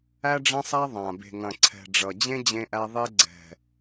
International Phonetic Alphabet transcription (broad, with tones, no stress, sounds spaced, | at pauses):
æ˦ ɖ͡ʐ ɐ̃˦ sˤ æ˦ ðˤ ã˨ b e̤˨ ŋ ɐ̃˨ ǀʰ ɛ̤˨ ɖ͡ʐ ʌ˨ d͡ʑ ẽ˦ d͡ʑ ẽ˦ ʔ æ˦ ðˤ e˦ ɡ͡ǀ ɛ̤˨